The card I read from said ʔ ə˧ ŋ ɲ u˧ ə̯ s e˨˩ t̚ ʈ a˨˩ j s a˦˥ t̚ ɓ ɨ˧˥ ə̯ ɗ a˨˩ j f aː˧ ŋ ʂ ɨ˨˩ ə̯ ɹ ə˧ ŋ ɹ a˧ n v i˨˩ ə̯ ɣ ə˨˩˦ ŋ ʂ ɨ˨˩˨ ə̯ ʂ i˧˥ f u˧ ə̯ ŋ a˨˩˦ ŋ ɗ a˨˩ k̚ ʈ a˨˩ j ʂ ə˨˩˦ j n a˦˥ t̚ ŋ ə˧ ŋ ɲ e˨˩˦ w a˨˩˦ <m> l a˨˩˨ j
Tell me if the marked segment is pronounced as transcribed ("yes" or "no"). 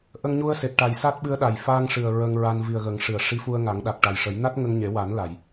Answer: no